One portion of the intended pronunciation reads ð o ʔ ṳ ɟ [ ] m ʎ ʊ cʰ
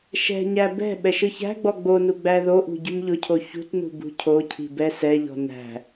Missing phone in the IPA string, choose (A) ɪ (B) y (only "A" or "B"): B